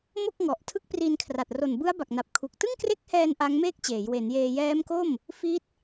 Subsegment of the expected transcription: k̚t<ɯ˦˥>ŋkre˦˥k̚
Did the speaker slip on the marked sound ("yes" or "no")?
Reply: yes